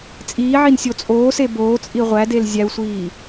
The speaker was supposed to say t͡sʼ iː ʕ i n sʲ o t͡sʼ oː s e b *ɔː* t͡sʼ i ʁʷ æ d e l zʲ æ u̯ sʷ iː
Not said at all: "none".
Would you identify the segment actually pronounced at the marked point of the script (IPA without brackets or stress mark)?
oː